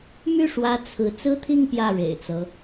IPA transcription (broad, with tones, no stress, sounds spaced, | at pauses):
m y˥˩ ʂ w ä˧˥ t͡sʰ ɹ̩˧˥ t͡s ɹ̩˥ t̪ʰ i˥˧ ŋ p j ä˥˩ ɻ ḛ˨˩ ɪ̯ t͡s ɤ˦